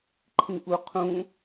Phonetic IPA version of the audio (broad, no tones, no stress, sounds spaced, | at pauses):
ǃʰ ĩ ʔ u qʰ ũ